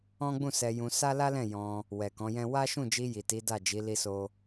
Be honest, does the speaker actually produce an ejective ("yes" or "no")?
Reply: no